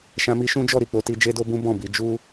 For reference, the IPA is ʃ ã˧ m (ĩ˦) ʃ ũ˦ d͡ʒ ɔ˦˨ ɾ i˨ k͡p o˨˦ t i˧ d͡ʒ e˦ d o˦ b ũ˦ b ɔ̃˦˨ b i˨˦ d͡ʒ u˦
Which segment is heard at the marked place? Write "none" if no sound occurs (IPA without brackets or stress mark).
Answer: i˦